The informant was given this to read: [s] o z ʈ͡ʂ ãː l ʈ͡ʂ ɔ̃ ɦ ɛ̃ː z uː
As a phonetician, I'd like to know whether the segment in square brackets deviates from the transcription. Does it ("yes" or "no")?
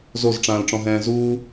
yes